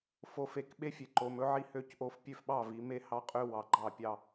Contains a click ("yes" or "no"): yes